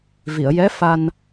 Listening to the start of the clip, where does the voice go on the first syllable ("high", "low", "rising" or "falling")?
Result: low